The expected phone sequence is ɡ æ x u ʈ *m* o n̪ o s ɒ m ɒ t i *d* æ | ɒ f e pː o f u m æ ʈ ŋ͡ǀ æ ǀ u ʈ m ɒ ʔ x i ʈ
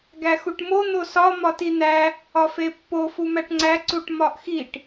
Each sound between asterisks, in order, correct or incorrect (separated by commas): correct, incorrect